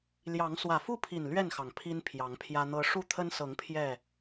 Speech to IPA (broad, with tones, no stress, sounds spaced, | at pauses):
l j ɑ˨˦ ŋ s w ä˨˩ f u˥˨ pʰ i˨˩ n l ɥ ɛ˥˨ n x ɑ˩ ŋ pʰ i˦ n pʰ j ɑ˨˦ ŋ pʰ j ä˦ n̪ ɤ˦ ʂ u˥˨ t̪ʰ ə˦ n s ɤ˨˦ ŋ pʰ j ɛ˥˨